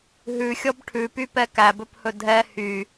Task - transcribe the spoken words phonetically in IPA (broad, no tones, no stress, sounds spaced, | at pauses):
ɦ ʉ xʲ ɔ b ʈʰ ʉ p y p ɛ k æ b ɵ p h ɵ dʱ ɛ h y